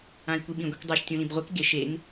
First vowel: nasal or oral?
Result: nasal